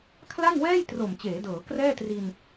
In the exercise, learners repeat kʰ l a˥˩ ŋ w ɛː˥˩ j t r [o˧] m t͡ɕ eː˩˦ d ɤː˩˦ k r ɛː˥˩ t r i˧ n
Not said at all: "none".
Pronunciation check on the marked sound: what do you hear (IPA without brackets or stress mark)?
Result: o˨˩